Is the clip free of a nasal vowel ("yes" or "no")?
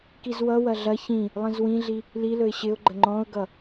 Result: no